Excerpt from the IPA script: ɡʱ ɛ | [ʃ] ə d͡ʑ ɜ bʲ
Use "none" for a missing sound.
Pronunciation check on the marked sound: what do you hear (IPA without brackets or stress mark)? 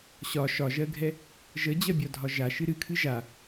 ʒ